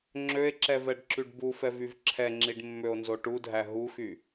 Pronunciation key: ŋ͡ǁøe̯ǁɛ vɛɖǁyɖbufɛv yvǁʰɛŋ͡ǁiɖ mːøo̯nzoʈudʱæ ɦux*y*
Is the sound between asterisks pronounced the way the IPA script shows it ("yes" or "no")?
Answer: yes